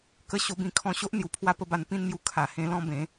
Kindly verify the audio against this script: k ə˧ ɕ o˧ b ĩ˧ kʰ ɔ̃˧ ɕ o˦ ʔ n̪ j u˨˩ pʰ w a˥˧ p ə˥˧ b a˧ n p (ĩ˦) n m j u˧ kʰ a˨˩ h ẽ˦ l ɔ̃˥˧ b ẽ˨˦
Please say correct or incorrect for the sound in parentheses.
incorrect